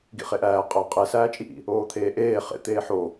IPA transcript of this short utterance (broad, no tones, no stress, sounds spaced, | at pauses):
ɡ ḭ χ e ʔ æː qʼ æ qʼ e s æː t͡ʃʼ i ʔ ḭ | oː t̪ʰ eː ʔ eː χ ḛ t̪ eː ħ o